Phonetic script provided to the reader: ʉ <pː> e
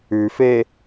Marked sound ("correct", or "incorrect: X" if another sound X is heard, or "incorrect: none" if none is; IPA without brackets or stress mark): incorrect: f